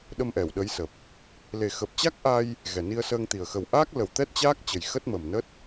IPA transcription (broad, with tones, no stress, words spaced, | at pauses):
ɗə˧mʔɛ˧˩wɗə˨˦jsə˨˩p̚ | le˨˩xə˨˩p̚t͡ɕa˦˥k̚ʔa˧j | ɣɛ˨˩ni˧ə̯ səː˧ŋt̪i˨˩ə̯ xə˨˩wʔaː˦˥k̚lə˨˩w t̪ɛ˦˥t̚t͡ɕaː˦˥k̚ t͡ɕə˨˩jxə˦˥t̚mə˨˩mnə˦˥t̚